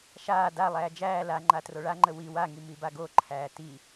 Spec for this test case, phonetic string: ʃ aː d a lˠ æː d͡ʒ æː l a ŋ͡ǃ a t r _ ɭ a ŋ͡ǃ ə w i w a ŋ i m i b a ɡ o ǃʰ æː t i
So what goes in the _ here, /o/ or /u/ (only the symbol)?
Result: o